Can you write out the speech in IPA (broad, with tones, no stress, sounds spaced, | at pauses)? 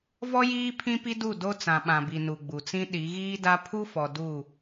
v ɔ˦ j iː˦ pʰ ĩ˦ p i˦ d u˦˨ d o˦ t͡s ã˨ ɓ ã˨ b i˨ n u˨ ɡ͡b u˨ t͡s ĩ˦ ɗ i˨˦ ɣ iː˦ d a˦ pʰ u˦ f ɔ˨ d u˦˨